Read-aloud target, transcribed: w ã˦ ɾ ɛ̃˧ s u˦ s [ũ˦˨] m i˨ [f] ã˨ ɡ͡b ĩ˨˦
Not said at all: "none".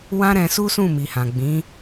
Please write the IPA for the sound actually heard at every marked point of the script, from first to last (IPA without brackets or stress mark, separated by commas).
ũ˦˨, h